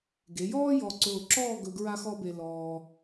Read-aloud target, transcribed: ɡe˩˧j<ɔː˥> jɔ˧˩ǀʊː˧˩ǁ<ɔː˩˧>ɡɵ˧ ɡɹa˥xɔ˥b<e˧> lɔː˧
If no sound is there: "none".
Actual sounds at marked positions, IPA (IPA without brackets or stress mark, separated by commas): ɔː˥, ɔː˥˧, e˧